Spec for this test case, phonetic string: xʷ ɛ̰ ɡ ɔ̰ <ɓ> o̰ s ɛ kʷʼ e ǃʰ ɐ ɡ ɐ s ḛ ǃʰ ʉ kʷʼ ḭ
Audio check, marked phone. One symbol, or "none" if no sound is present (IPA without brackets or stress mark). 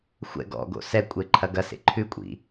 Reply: ɡ